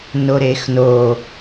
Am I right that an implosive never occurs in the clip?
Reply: yes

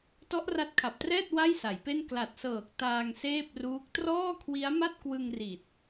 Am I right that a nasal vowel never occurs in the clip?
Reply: yes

